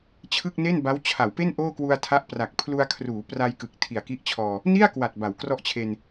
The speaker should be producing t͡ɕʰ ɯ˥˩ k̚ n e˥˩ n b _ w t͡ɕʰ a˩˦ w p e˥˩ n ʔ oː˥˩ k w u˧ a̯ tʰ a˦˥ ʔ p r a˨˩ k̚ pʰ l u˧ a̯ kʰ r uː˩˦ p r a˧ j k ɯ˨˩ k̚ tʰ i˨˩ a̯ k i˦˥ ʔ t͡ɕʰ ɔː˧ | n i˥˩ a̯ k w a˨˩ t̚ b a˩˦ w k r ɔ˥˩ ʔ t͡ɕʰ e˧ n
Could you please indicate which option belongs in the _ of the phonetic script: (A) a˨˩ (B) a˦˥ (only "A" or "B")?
B